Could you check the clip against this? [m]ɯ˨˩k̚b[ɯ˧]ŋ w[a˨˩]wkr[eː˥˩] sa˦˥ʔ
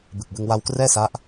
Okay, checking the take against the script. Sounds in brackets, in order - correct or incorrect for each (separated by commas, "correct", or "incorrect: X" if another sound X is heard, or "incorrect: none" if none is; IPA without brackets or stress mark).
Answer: incorrect: b, correct, incorrect: a˧, incorrect: ɛː˥˩